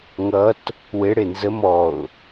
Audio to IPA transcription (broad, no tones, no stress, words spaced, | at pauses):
ŋʌt | weɽe nzə mɔʊ̯